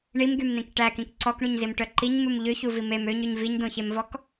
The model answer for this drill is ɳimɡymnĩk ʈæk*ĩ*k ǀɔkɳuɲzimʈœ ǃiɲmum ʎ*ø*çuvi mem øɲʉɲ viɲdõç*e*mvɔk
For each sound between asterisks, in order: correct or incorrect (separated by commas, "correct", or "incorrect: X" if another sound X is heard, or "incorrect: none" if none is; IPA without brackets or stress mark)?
correct, correct, correct